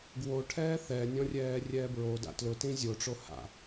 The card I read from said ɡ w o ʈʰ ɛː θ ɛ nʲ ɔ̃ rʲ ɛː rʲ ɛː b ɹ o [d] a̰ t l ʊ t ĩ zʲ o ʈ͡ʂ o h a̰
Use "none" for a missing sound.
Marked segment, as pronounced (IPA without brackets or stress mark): d